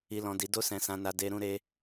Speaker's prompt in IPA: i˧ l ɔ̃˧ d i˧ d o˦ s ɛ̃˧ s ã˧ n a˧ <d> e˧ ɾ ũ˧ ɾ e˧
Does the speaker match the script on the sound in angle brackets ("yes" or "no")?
yes